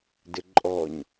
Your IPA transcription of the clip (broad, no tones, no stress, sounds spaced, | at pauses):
d ɪ ǃʼ ɔ ɲ